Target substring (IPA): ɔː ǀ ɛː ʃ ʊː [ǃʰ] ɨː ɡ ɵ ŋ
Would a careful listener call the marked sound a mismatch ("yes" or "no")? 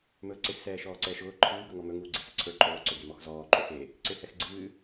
no